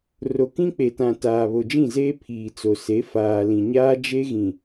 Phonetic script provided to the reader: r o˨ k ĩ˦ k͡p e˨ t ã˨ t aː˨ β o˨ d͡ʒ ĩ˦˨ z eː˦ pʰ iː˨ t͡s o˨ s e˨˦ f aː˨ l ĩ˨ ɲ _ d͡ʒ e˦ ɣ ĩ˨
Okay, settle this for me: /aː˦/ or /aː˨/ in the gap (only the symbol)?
aː˦